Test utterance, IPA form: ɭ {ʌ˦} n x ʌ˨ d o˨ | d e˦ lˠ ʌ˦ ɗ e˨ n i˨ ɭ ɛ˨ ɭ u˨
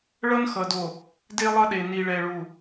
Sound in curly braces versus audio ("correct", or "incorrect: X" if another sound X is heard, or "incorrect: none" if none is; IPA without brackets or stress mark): correct